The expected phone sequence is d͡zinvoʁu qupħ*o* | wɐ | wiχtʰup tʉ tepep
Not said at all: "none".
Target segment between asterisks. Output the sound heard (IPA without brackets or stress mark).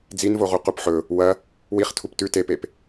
ɵ